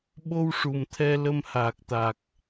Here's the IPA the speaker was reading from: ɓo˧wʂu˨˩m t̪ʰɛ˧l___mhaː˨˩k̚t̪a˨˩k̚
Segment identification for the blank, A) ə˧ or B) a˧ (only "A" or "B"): A